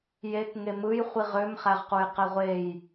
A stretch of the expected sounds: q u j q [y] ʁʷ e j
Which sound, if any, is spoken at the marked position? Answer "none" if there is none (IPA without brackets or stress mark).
e